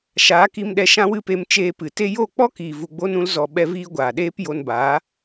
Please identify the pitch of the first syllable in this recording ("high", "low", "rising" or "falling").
rising